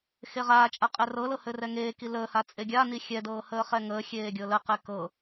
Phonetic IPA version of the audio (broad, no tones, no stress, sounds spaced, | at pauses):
x e ʁ aː t͡ʃʼ a qʼ ɛ r ɤ l ɤ h ɘ r ɛ ŋ eː k i l əː h a t͡sʼ e ɡʲ a n i xʲ ɛ d ɤː h əː χ ɛ ŋ əː xʲ eː ɡʲ ɤ l ə q e k ɤ